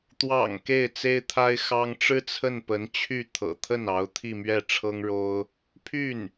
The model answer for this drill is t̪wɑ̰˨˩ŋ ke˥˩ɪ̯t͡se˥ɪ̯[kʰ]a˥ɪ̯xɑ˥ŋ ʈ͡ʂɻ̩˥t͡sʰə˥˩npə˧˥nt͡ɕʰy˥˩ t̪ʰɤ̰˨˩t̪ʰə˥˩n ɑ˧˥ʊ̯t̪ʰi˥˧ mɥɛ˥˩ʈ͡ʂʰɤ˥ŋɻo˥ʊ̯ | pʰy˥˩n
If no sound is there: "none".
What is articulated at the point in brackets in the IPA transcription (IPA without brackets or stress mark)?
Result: t̪ʰ